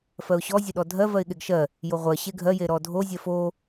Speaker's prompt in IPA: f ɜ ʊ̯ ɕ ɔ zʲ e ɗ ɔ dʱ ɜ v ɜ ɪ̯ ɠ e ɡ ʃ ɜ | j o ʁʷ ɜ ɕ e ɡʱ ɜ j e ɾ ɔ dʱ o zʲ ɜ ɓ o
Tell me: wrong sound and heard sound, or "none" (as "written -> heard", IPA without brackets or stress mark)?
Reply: ɓ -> f